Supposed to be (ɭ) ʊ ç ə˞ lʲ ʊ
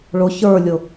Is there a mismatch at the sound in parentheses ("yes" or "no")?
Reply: no